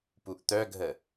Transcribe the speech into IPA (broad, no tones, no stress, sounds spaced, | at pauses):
p u ʔ t̪ œ ɡʱ ə